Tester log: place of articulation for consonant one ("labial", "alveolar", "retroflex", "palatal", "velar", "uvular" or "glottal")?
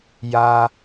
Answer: palatal